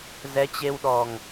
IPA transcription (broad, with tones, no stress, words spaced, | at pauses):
zɛ˨˦t͡ɕe˧wɗɔ˨˩ŋ